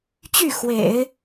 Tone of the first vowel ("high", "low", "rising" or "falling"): falling